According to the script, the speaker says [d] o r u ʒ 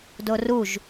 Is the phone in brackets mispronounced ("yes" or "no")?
no